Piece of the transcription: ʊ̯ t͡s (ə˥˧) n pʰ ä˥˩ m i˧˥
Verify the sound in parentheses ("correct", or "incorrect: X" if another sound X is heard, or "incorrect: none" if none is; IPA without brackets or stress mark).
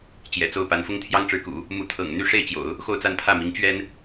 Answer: incorrect: a˥˧